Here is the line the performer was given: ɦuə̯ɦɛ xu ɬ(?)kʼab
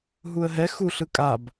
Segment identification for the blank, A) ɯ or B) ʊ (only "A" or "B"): A